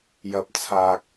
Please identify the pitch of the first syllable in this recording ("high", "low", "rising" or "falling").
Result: high